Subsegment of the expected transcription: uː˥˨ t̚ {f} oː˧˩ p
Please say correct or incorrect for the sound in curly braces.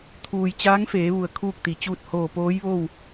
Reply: incorrect